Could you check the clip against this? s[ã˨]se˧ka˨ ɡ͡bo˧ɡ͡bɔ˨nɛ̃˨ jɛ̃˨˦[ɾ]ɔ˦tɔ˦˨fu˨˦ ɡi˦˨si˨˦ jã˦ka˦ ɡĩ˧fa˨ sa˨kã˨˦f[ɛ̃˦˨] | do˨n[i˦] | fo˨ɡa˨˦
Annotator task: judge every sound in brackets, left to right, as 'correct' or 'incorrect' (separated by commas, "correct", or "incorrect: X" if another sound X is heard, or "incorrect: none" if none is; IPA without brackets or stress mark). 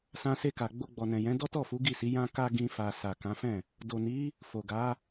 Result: incorrect: ã˧, incorrect: d, correct, incorrect: i˨˦